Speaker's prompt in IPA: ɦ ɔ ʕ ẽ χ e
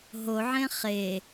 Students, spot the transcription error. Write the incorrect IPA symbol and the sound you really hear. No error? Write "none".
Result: ɔ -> o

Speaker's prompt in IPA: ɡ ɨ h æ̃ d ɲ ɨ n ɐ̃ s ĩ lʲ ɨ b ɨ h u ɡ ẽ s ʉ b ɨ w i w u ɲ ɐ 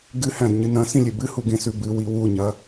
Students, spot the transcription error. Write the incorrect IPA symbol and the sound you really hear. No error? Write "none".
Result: none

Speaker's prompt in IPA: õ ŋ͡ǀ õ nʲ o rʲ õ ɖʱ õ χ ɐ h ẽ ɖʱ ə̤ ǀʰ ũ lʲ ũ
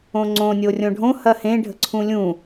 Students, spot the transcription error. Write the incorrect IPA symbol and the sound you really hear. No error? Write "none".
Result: χ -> h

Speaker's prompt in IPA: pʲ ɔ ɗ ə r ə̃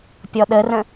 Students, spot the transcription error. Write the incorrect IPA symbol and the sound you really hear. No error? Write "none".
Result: none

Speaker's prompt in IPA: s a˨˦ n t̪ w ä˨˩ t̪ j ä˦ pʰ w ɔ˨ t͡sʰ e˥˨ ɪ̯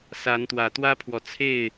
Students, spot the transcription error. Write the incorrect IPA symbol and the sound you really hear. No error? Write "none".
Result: j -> w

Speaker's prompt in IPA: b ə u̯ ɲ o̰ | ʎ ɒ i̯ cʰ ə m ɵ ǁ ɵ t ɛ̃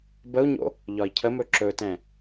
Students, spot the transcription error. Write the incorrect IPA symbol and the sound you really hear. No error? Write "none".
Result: none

